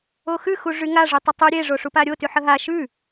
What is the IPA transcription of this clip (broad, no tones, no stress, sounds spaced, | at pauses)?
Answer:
o x ʉ x u ʐ y ŋ a ʐ y tˤ ə tˤ ʉ ɾʲ e ʐ o ʂ u p a ɾʲ o t y ħ ə ɦ a ʃ ʉ